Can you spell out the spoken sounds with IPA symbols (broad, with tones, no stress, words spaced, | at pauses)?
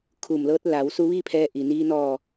kʰuː˧˩mlɤː˧˥t̚ la˩˧wsu˧ʋiː˥˨ pʰɛː˧ʔi˩niː˧ nɔː˧˩